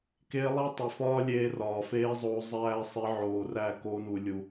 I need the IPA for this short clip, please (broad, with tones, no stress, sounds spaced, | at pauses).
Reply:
k eː˧ lˠ æ˦ tˤ i˨ f ɒː˦ lʲ eː˧ r ɒː˨ f eː˧ zˤ oː˧ zˤ æː˦ sˤ e˦ ʕ oː˧ r æ˦˨ k o˦ n u˧ lʲ u˧